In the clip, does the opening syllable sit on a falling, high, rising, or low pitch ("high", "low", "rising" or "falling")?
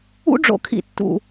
high